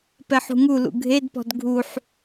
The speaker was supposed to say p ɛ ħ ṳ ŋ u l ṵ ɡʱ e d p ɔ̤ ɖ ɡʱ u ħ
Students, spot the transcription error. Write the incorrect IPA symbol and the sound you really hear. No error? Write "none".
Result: ɖ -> d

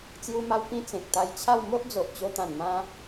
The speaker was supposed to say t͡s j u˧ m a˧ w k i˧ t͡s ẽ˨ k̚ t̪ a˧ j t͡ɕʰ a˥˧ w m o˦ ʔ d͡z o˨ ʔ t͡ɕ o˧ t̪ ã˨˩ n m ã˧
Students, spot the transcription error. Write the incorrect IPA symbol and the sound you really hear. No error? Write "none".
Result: i˧ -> ĩ˧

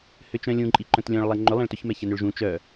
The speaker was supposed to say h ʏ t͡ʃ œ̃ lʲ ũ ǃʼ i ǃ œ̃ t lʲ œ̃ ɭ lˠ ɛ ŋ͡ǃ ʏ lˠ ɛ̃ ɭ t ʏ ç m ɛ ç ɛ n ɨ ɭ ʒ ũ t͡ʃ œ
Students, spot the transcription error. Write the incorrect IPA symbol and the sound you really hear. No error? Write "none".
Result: ɨ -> ʏ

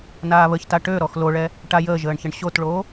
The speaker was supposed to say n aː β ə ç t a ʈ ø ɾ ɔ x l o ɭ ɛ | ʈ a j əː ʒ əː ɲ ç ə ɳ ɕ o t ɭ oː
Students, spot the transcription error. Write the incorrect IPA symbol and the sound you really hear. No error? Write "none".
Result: ɲ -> ɳ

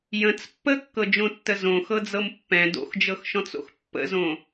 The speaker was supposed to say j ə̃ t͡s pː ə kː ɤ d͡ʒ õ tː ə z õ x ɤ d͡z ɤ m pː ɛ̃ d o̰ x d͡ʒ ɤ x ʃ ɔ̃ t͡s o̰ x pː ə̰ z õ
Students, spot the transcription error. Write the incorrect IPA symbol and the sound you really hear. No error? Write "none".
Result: none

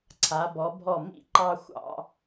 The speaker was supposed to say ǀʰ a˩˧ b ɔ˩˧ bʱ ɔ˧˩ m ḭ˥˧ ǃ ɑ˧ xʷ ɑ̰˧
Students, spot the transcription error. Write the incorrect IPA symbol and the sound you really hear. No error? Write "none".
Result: none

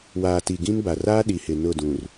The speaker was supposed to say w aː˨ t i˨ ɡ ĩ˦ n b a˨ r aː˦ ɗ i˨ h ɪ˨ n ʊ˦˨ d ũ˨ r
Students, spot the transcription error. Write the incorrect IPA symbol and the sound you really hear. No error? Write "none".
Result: none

